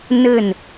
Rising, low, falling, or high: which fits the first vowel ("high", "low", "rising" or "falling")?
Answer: falling